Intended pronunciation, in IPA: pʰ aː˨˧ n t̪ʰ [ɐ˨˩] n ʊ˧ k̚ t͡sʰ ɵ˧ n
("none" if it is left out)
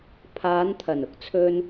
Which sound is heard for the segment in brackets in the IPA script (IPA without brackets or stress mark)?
ɐ˨˩